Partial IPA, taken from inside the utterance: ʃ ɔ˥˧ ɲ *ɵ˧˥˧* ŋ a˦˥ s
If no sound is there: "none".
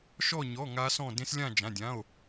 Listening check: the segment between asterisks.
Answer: ɔ˧˥˧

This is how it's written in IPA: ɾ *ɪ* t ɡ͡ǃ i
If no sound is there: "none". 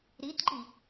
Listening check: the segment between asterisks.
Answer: i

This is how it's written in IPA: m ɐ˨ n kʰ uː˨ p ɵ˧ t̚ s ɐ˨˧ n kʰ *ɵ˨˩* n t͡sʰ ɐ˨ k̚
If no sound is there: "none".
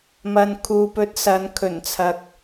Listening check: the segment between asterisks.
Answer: ɵ˨˩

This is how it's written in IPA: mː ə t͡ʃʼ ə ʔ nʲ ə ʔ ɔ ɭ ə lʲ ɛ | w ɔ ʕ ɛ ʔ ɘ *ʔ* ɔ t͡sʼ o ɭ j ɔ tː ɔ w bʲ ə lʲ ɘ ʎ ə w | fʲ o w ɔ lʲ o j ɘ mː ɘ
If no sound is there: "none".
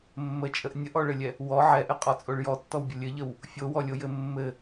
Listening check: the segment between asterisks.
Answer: qʼ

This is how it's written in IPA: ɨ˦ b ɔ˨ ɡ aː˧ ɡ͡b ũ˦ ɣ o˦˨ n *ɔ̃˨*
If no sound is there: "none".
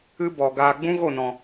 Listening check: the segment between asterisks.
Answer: ɔ̃˨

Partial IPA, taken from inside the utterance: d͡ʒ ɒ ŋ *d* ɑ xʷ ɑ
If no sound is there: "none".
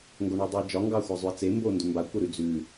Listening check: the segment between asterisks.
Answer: ɡ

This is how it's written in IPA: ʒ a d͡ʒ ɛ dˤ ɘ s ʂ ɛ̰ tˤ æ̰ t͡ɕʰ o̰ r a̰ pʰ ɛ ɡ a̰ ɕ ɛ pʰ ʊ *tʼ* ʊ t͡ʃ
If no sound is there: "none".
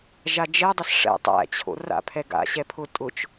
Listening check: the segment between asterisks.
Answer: tʼ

